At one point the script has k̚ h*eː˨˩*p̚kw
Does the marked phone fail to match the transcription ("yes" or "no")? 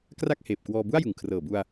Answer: no